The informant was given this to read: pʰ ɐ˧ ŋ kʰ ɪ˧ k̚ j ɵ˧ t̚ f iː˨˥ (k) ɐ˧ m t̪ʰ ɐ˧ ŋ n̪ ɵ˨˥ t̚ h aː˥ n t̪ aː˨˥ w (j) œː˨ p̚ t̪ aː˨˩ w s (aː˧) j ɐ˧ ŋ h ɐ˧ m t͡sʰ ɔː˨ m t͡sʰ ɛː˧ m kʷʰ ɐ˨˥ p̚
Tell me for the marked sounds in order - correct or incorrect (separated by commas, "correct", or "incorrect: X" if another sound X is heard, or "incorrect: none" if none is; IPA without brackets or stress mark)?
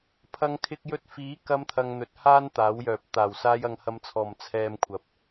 correct, correct, correct